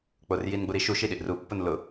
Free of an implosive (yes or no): no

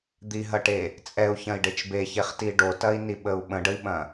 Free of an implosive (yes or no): no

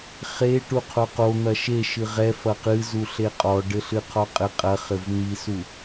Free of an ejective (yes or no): no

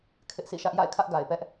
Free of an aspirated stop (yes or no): no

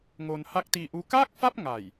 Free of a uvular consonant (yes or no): yes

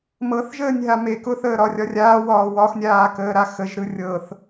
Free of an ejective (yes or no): yes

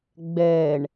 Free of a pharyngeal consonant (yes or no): yes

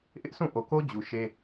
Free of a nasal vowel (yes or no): no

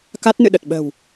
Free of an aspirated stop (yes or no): yes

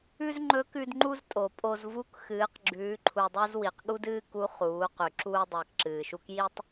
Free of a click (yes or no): no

